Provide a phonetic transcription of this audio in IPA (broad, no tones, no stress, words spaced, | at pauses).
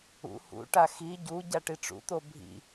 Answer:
ṵ hṵʈa xi ɟu ɟaʈiʈ͡ʂṵt̪o bʱḭ